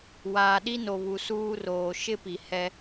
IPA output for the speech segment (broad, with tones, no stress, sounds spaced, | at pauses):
w aː˨ ɗ i˦ n o˨ β u˨ s uː˦ r oː˨ ʃ ɪ˦ p i˨ h ɛ˦